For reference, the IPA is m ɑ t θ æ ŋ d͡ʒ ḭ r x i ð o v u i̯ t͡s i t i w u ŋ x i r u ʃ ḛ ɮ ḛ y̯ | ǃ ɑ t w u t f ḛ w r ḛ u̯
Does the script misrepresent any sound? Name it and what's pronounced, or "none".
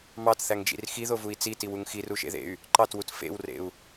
ɮ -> ð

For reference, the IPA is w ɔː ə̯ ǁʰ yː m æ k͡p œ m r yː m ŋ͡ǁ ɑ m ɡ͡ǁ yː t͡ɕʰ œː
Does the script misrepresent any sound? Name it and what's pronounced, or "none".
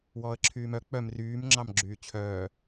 æ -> œ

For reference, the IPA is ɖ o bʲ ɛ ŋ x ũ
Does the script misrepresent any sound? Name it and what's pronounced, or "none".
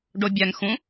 none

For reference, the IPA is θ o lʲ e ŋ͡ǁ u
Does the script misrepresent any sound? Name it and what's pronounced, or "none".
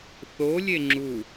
none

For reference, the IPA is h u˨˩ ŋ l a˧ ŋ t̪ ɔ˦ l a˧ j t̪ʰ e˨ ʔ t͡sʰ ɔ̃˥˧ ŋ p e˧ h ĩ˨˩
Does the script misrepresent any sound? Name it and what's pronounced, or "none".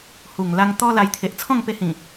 none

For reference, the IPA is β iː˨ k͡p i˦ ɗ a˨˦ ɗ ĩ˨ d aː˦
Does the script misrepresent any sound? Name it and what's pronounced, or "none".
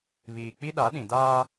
none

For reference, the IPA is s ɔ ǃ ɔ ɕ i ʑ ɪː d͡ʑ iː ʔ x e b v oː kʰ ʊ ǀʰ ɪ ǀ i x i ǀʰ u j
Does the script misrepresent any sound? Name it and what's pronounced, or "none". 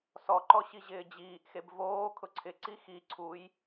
none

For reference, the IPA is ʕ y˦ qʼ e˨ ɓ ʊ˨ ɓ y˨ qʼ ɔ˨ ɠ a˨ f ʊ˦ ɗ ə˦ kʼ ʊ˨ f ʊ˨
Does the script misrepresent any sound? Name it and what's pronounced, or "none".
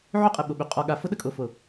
none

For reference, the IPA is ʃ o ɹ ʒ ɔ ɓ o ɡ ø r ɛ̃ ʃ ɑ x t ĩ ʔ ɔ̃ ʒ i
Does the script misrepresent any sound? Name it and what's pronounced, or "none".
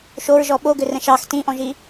none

